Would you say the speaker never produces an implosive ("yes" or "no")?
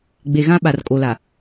no